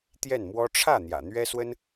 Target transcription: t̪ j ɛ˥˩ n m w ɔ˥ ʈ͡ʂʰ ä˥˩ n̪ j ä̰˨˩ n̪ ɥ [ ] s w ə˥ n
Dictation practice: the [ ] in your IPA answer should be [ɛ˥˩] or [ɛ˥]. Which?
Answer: ɛ˥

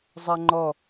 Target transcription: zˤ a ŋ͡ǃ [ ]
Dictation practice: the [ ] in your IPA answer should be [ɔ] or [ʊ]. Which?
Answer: ɔ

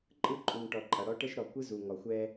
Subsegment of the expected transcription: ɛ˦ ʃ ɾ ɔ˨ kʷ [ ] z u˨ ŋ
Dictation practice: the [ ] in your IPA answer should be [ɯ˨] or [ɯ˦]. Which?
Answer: ɯ˦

